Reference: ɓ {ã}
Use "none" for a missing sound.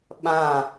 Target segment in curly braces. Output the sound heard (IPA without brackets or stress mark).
ã